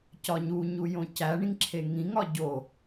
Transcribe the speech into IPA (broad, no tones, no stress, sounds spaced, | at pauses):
c ɒ ɲ u ɲ u j õ c æ ɳ ĩ ŋ ǁʰ e ŋ ĩ ŋ ɒ ɟ o